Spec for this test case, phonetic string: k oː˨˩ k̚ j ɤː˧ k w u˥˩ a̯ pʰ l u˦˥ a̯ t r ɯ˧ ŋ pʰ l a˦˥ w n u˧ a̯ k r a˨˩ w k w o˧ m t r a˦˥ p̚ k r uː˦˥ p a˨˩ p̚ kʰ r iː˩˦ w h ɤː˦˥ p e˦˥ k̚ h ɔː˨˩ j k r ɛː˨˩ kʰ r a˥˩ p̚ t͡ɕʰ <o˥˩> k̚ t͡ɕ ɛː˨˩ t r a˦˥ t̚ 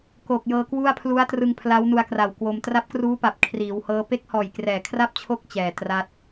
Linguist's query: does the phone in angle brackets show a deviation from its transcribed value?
no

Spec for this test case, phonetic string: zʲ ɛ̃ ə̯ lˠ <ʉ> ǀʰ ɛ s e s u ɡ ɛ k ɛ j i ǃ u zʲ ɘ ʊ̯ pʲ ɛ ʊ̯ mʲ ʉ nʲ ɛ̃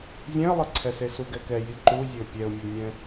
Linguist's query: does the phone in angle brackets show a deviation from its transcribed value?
yes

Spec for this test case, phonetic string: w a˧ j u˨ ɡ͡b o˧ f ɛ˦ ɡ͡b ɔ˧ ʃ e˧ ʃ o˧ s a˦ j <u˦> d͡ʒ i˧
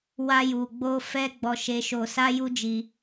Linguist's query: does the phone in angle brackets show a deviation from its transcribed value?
no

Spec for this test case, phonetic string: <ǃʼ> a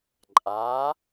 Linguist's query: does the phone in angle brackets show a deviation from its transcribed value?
no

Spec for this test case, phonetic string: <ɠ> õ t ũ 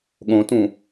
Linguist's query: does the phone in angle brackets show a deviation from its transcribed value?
no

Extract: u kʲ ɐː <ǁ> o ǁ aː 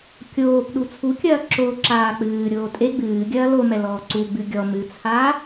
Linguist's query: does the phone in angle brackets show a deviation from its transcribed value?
no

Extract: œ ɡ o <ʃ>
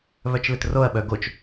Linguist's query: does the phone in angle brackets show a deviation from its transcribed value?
yes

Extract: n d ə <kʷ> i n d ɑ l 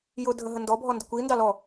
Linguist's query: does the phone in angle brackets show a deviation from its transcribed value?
no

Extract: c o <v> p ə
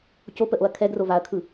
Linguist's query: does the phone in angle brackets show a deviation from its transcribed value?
yes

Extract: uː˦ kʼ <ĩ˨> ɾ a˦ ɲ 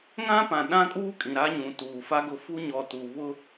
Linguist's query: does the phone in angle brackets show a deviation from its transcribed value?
no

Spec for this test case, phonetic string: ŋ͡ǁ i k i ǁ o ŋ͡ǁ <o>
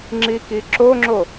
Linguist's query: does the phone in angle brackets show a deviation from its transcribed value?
no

